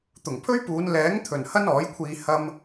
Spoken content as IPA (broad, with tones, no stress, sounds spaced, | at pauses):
t̪ ʊ˨˩ ŋ pʰ ɵ˥ ɥ p uː˨˧ n l ɛː˨˥ ŋ t̪ʰ ɵ˨˩ n h ɐ˥ n ɔː˨˥ j kʷʰ iː˧ h ɐ˧ m